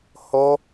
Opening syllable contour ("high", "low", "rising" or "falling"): high